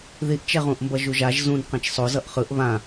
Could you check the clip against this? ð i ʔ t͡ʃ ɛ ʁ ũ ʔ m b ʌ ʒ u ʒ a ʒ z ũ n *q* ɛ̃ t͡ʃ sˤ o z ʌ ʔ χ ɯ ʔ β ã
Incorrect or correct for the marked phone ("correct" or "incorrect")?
correct